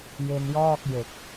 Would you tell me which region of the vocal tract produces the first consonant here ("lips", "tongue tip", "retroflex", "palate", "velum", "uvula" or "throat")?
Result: palate